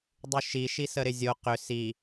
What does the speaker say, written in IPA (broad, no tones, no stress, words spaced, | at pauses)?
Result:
dˤʉʃiʃi səɾɪzʲo qʏ si